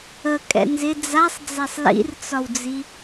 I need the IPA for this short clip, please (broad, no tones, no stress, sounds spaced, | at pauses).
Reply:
ə kʼ ɛ̰ n z ɪ d͡z a sˤ d͡z a sˤ l ḭ r t͡s ɒ w d͡z i